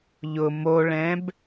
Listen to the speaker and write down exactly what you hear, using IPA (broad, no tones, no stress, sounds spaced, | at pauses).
ʎ ʊ m o ɭ ɛ̃ b